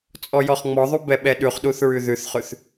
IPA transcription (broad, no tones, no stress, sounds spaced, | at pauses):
t͡sʼ ɔ j ɔ χ ŋ͡m ɔ ðˤ u b ɛ ɓ ɛ ɗ ʉ χ ɗ u θ ɹ ʉ ð ʉ θ χ ʉ θ